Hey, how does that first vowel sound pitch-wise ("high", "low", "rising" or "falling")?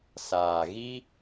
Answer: low